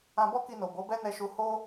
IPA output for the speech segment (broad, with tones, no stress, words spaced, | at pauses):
ã˧bɔ˦ki˧no˨ bo˨˦bɛ˦nɛ˧ʃu˧ ho˦